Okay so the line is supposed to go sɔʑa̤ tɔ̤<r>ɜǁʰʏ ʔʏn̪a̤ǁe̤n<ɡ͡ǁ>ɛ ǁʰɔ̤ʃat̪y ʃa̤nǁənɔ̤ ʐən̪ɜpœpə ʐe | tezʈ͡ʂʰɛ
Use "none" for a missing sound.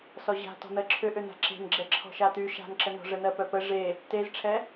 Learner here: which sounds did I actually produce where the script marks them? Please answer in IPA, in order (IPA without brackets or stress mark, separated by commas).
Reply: n̪, ɡ͡ǁ